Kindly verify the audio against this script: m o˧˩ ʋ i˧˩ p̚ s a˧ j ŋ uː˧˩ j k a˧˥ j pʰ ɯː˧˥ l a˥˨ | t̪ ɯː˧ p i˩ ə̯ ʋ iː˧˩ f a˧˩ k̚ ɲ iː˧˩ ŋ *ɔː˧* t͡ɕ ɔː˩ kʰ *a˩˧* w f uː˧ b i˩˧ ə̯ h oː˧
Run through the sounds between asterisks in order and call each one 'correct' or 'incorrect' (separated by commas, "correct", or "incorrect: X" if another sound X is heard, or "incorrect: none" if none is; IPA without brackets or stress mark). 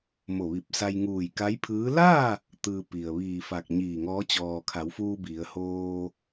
incorrect: ɔː˧˥, correct